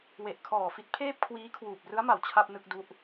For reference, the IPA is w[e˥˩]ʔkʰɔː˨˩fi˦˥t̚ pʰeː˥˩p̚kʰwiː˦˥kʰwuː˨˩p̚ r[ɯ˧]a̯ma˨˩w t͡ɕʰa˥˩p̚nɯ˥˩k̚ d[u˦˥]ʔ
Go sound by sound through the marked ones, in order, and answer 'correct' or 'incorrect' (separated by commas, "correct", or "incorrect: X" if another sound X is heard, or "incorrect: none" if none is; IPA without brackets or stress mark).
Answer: incorrect: e˨˩, incorrect: ɯ˦˥, correct